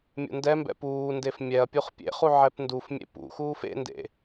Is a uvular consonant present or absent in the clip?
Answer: present